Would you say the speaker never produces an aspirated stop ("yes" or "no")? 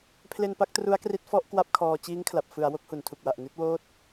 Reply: no